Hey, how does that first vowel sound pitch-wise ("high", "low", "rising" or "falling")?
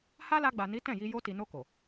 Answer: high